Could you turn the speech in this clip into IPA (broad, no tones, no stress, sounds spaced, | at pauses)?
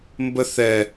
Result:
m b ə θ ɛ